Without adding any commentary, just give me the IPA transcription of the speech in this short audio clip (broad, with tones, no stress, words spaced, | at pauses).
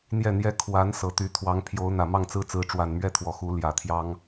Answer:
n̪jɛ˥˩n̪jɛ˥ kʰwa˧˥n sɤ˨˩t̪y˧˥ t̪ʰwɑ˧˥ŋpʰjo˧˥ʊ̯n̪ä˨˩ mɑ˥˩ŋt͡sɹ̩˥t͡sɹ̩˧˥ ʈ͡ʂwa˨˩nmɥɛ˥t̪ʰwɔ˨˩ xu˧˥ ljä˨˩t̪ʰjɑ˥ŋ